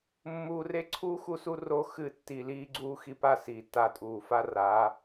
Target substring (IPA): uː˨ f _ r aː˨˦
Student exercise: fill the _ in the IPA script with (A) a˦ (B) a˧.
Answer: A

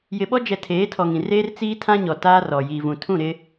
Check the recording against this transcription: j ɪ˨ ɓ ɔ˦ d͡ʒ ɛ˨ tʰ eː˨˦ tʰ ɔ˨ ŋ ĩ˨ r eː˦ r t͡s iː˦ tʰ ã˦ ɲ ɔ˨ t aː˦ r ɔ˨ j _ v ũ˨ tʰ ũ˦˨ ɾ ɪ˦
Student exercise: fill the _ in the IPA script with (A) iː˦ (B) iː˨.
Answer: B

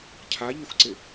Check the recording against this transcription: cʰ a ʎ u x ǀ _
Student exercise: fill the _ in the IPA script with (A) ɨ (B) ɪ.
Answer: B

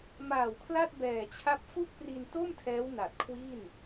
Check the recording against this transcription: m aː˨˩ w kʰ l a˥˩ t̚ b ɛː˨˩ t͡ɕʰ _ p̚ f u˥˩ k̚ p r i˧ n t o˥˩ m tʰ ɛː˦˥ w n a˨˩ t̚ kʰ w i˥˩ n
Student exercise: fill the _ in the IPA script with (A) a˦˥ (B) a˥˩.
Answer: A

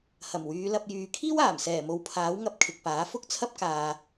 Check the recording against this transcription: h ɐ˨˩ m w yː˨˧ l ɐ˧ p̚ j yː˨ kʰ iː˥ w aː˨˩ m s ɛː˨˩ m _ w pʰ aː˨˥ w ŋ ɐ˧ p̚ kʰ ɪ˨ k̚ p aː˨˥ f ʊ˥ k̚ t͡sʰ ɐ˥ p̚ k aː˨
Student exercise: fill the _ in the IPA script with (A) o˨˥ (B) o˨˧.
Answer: B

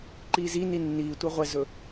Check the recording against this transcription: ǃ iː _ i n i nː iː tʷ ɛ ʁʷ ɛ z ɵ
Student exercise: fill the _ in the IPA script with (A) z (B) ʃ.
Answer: A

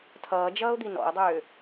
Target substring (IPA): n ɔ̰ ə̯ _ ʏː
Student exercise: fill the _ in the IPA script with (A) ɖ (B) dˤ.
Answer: B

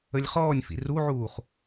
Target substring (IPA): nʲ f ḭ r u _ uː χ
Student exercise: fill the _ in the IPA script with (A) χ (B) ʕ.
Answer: B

